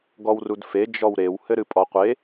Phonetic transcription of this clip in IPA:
ɡ ɔ w r u d f e d͡ʒ ɔ w ɾ e w h ɘ ɾ ɨ pʼ ɔ qʷ e

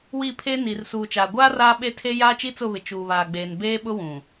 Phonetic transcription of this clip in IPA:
w i˦˨ pʰ e˦ n iː˨ r s uː˨ t͡ʃ aː˨ ɡʷ aː˦ r aː˦ ɓ e˦ tʰ e˦ j aː˦ t͡ʃ i˦ t͡s ʊ˦˨ β ɪ˨ t͡ʃ uː˨ β aː˨ ɡ͡b eː˨ n b eː˦ ɓ ʊ˦ w ũ˨

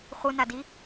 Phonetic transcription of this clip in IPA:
χʷ ɯ n a d i

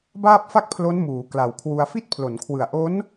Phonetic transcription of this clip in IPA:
b aː˥˩ p̚ f a˥˩ k̚ pʰ l o˦˥ n m uː˩˦ k l a˨˩ w kʰ w u˧ a̯ f i˥˩ t̚ pʰ l o˩˦ n kʰ w ɯ˨˩ a̯ ʔ o˦˥ n

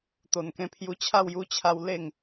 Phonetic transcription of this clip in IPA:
t̪ o˨˩ n k ẽ˧ pʰ j u˧ t͡ɕʰ a˥˧ w j u˧ t͡ɕʰ a˧ w l e˥˧ ŋ

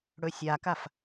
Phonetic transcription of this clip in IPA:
ɽ ɵ sʲ a k a f

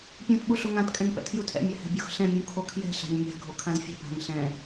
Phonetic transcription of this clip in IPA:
pʲ ũ t ɓ u ɬ o ŋ ã t kʼ ɛ̃ ŋ p ɛ̰ tʰ j u tʰ ɛ̰ mʲ a h ɛ̤ bʲ o x ɬ ɛ̃ mʲ ũ kʰ o kʰ j ɛ̤ ɬ a̤ ɲ mʲ a̤ ɡʱ o kʰ ã z fʲ ɛ̤ bʱ a̤ ŋ ɬ ɛ̃

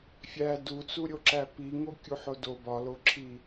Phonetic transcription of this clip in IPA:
fʲ æ d u t͡s u ɾʲ o ǁ æ p i ŋ o kʲ u ħ o d o b ɒ l o ǁʰ i

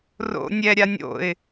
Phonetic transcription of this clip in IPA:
r o̰ nʲ ɛ ɾʲ a nʲ o̰ ɪ̯

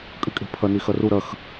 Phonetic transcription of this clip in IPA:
kʼ ɨ kʼ e̤ pʰ ɐ n i x ɐ r u ɾ ɐ x

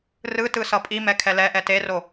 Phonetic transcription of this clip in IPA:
r ɯ t ɯ s ʌ pʼ i m ɛ kʰ ɛ l ɛ ʔ ɛ t e r o

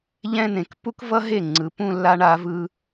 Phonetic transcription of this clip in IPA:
ʎ ɛ̃˥ n ẽ˨˩ k p u˥ k v ʌ˥ ɦ e˥˩ ŋ͡ǀ ɯ˨˩ p ũ˥˧ lː a˥ ɳ a˥ v ɯ˥

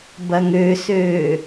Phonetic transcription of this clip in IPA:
b ɐ ŋ ø s øː

